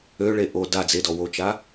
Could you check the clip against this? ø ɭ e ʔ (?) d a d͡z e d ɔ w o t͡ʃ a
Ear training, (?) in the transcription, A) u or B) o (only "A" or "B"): B